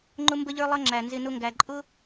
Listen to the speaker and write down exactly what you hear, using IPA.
ŋ͡ǃʊ˦mbə˦ʎə˞˦lˠʌ˦ ŋ͡ǁæ˨nzɪ˧nʊ˦ ŋɡæ˨ǃʼʊ˦

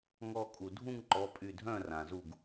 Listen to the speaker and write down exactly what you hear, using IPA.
ŋɔ˧˩kʼu˩dʱũ˥˨ŋǃɔ˩˧˩ pʼy˧˩dʱœ̃˥˨ rã˩zu˧˩ɡ

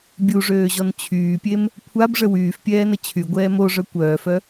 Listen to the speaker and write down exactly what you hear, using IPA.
bʲuʐøːʑɔn t͡ɕʰyːpʲem | kʷʰabʐə wyːfpʲɛːnə t͡ɕʰyɡʷɛː moʐœ kʷœːfœ

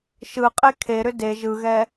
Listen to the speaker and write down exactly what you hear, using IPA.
ʃɯqʼe kʰeɾʏ de ʒɯɣɛ

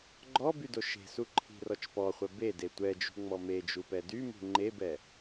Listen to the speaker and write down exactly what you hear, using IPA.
ɡ͡ǃɔbydo ʃe̤suǃʰi̤rɔt͡ʃ pɔχʷɛ bede tʷɛd͡ʒṳŋ͡mɔ med͡ʒupɛ dymṳ ŋ͡ǃebɛ

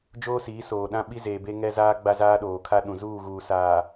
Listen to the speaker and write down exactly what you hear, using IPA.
d͡ʒoː˦siː˨˦ soː˨ɗã˦ ɓi˦zeː˨be˦ ŋɛ˦zaː˦ ɡ͡ba˦zaː˦ɗoː˨ kʰa˦ɗũ˨ zuː˦˨ɣuː˨ saː˨

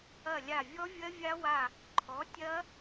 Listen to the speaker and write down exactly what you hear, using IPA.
ɐ˦˨lʲa˦˨ vʲɔ˦˥vʲɐ˦˥ vʲa˦˥wa˦˨ | ǃʰɔ˨˥tʲɐ˦˥

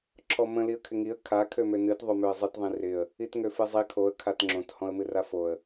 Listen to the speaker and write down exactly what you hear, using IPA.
ǁʰɔmə̃ liə̯kʰɪŋiə̯ kʰa kʰømønɨt ðˤomøə̯zˤɨt ðˤĩrɪə̯ | itŋøfɨzˤi kʰoə̯ kʰatŋ͡ǁõt hɔ̃ə̯mɨrafoə̯

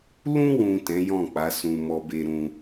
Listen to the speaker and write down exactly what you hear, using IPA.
lũ˧wũ˨ tɛ̃˨˦jɔ̃˦˨k͡pa˨˦ sũ˧mɔ˧be˧ ɾũ˧

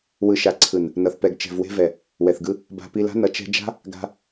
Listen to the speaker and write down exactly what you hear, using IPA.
wɯ˨ʃa˨ǀʰɯ˨n | nʌ˨θpɛ˨ɡ t͡ʃɛ̤˨vwe̤˧vɛ˨ | wɛ˨θɡɯ˦ | ba̤˧pi˧la̤˦ nʌ˨t͡ʃɛ̤˧d͡ʒa̤˦ | ɡa̤˧

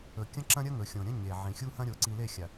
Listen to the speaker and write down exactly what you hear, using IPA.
ɵ˨kʲɐ̃˦ ǁɐ̃˦ɾʲɐ˦ ŋɵ˨xʲõ˨ɾʲɐ̃˦ ɲe˨ ʕĩ˨xʲu˦hɐ̃˦ɾʲo˨˦ ǀi˨le˦˨xʲa˨

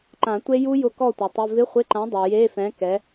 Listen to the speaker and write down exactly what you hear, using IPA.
ǃã˨˩˦tʷe˦˥ ju˦˥ jʊ˦˥kɔ˥˨tʷe˨tˤɪ˧˥˧ vɪ˧˥˧χʷɪ˧˥˧ǃã˨˥dˤa˨ je˧˥˧fɛ̃˨˥ kɛ˨˥

